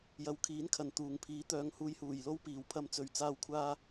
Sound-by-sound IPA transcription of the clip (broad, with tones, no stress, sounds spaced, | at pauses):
j ɐ˨˧ w kʰ iː˨˥ n kʰ ɐ˨˩ n t̪ uː˨˩ ŋ pʰ iː˨˥ t̪ œː˨ ŋ h uː˨˧ j h uː˨˩ j l o˥ w p iː˨˩ w pʰ ɐ˧ m t͡s ɵ˨˩ ɥ t͡s aː˨ w kʷʰ aː˧